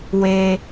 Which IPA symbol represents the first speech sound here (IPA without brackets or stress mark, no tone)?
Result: w